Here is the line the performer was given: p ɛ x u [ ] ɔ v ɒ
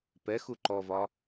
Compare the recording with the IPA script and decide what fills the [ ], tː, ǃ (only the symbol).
ǃ